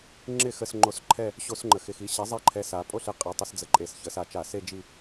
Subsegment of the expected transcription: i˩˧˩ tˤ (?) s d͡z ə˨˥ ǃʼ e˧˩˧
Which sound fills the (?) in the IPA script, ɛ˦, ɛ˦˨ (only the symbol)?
ɛ˦